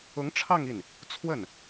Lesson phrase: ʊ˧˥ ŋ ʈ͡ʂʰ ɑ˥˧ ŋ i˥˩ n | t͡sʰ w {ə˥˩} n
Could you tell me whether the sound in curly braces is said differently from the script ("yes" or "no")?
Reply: no